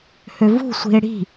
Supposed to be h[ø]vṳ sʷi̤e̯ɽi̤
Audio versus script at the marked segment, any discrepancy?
no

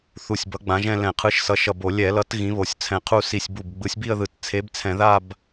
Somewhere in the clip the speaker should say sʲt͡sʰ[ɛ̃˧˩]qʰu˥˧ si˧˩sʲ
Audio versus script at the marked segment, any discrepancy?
no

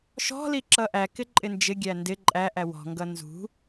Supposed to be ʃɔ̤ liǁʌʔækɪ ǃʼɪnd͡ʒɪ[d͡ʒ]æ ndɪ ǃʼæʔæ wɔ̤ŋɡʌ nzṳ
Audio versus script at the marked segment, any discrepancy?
yes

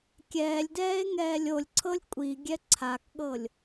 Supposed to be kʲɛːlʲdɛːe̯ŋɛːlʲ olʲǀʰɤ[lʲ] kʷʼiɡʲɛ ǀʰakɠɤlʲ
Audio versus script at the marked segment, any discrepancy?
no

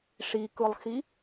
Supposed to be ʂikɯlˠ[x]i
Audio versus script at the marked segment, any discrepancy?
no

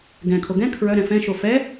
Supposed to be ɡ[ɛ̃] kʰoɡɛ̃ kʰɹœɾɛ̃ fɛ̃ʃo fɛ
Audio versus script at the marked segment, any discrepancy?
no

